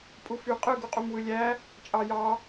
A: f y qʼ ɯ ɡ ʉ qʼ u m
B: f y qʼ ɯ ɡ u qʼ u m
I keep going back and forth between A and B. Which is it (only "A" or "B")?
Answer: B